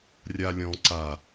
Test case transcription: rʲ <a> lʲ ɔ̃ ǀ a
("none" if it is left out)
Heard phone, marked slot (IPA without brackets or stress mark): a